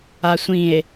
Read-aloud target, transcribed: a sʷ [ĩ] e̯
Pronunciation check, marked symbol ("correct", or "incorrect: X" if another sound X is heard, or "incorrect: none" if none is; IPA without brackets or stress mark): correct